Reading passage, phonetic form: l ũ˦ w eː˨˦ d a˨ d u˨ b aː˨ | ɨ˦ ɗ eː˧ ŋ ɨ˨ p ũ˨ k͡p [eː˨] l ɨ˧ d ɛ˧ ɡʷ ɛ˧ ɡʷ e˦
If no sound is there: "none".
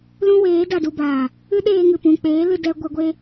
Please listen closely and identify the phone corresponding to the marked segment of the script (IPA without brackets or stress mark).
eː˨˦